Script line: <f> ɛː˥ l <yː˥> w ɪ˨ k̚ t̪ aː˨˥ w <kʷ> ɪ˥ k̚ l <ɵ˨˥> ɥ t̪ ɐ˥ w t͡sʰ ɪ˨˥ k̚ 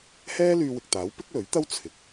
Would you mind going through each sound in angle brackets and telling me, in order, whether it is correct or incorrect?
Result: incorrect, incorrect, incorrect, correct

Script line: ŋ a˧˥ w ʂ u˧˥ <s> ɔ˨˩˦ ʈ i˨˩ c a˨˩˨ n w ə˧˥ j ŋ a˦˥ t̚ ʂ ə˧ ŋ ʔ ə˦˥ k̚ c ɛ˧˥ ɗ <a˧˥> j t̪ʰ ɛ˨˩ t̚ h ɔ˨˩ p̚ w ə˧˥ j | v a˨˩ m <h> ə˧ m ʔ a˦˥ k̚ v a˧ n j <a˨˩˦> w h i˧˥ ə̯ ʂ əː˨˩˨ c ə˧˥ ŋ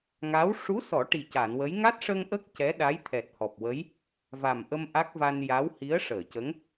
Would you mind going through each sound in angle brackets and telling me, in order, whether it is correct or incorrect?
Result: correct, correct, incorrect, incorrect

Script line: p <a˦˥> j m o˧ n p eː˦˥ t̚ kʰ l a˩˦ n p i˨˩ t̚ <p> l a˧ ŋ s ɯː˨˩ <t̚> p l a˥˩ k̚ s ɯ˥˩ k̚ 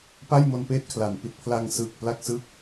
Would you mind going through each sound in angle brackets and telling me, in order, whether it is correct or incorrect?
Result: incorrect, incorrect, incorrect

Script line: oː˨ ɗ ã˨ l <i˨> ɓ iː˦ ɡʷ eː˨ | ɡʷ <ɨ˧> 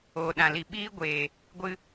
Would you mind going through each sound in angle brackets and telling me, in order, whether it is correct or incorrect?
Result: correct, correct

